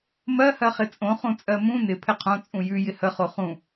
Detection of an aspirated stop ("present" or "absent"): present